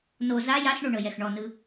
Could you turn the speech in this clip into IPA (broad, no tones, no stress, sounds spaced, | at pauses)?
n o z a j a ɬ ɳ o ɳ ɤ j ɛ x ɳ ɔ n ɯ